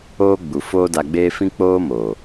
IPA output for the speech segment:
oː˦ ɡ͡b u˨ f oː˦ d a˧ ɡ͡b eː˦ f ĩ˦ k͡p oː˦ m oː˨

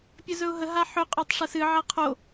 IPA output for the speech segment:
pʲ ɵ z ɵ ʊ̯ ɦ ə ɦ a ħ ɵ qʼ o tˤ ʂ ə s ɨ ʕ a qʰ o

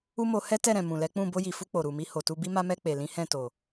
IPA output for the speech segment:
u˦ m o˧ h ɛ˦ t ɛ˦˨ ɾ ɛ̃˨ m ũ˨ l ɛ˨˦ k͡p ũ˦˨ b o˧ j i˨ f u˧ k͡p o˨ ɾ u˨ m i˧ h o˨ t u˧ b i˦ m a˦ m ɛ˧ k͡p e˨ l ĩ˨˦ h ɛ̃˦˨ t o˨

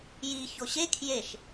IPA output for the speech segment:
j i ç o ɕ e kʰ j e ʃ

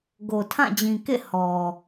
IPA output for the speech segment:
ɡ o˨ tʰ ã˦˨ d͡ʑ ĩ˨ k ḛ˦˨ h ɔ˨

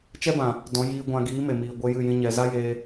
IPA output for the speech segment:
t͡ʃ ɛ˦ b ã˨ | d ɔ̃˨˦ j iː˧ ɡʷ ã˧ ɡ iː˨˦ m e˨ m iː˨ ɡʷ e˧ j ɨ˦˨ j ĩ˦ ɲ ɛ˧ z a˦ j eː˧

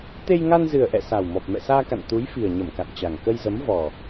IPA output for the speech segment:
t̪ e˧ j ŋ a˧ n z ɨ˨˩ ə̯ ʔ ɛ̰˧˨ s a˨˩ w m ɔ˨˩ p̚ m ɛ̰˧˨ s aː˧ k a̰˧˨ n t̪ u˨˦ j f i˨˩ ə̯ ɲ ə˧˩ m k a̰˧˨ n t͡ɕ a˨˩ ŋ k ə˧ j z ə˨˦ m v ɔ˨˩

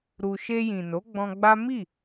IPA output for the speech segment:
ɾ u˧ ʃ e˧ j ĩ˨ n o˨˦ ɡ͡b ɔ̃˧ ɡ͡b a˦ m i˦˨

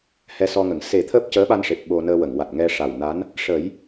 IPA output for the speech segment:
h ɛ˧ s ɔ˧ ŋ ə˨˩˨ ŋ s e˨˩˦ t̪ʰ əː˦˥ p̚ c əː˧˥ ɓ a˧ n ʂ e˨˩ p̚ ɓ o˧ n əː˧ w ə˨˩˨ ŋ w a˨˩ t̚ ŋ ɛ˧ ʂ a˨˩ w n a˧˥ n | ʂ ə˨˩˦ j

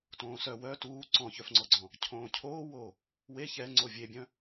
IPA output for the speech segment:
t õː s œ w œ t uː ǀ ɔ̃ ç œ f ŋ͡ǀ ɔ ɡ͡ǀ ɔ̃ | cʰ õː cʰ oː w oː | w e ç ɛ ŋ͡ǀ o vʲ e bʲ œ̃

